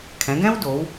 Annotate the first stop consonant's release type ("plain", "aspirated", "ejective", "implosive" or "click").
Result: aspirated